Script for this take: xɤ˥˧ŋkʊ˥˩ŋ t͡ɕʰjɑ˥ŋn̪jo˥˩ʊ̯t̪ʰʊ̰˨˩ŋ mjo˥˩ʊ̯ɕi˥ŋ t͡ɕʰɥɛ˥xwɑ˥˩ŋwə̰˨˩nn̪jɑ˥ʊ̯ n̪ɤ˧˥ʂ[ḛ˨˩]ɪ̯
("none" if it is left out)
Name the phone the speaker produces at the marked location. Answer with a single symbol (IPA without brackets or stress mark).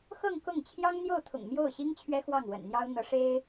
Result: e˥